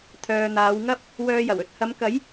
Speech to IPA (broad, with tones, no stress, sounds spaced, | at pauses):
t̪ʰ œː˨ n̪ aː˨˧ w ŋ ɐ˥ p̚ | w œː˧ j ɐ˨˩ w ɵ˧ t̚ h ɐ˨˧ m k ɐ˨˥ j